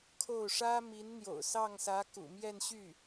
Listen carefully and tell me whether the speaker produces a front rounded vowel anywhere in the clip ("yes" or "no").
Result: yes